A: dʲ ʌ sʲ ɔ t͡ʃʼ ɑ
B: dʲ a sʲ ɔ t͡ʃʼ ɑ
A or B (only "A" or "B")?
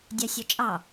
B